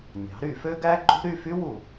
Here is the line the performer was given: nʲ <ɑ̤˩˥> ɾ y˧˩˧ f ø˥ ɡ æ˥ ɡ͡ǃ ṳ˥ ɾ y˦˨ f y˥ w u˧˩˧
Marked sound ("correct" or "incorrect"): correct